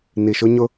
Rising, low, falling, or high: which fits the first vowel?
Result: low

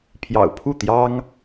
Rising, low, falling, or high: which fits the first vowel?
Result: low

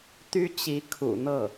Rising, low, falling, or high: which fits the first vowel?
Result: high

